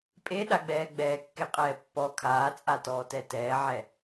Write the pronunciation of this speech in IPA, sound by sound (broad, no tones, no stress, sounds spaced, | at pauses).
pʼ e ɗ a ɡ͡b ɛː ɡ͡b ɛː kː e qʼ ɛː pː ɔ kʰ aː t͡sʼ a t ɔː t ɛ t ɛː ʕ ɛ